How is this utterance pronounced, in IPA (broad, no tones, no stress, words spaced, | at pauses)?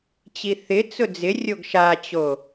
t͡ɕiθɪt͡sʊ d͡zɪrʲoɡ ʃat͡ɕo